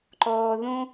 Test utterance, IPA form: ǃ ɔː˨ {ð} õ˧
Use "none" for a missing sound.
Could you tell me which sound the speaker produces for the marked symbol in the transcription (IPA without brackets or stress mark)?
ð